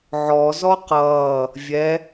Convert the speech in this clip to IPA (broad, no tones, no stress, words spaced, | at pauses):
ʕɔ zɔqʌː | vʲɛ